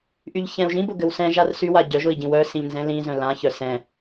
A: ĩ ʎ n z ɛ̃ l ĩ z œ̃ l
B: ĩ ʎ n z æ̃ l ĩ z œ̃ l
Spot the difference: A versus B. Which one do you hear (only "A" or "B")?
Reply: A